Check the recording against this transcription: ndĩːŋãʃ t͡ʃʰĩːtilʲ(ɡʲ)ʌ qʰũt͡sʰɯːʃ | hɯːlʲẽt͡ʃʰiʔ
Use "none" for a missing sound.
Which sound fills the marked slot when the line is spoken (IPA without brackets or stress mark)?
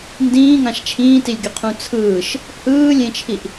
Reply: ɡʲ